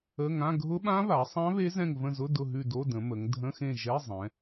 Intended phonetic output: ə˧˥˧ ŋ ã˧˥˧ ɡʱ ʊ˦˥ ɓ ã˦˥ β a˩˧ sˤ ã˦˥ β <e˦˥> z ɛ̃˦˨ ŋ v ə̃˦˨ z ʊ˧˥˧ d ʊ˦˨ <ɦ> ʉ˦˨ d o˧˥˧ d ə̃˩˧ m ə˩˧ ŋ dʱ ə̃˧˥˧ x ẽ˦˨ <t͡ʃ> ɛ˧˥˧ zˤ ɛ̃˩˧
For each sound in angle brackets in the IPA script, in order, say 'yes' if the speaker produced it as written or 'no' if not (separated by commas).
yes, yes, no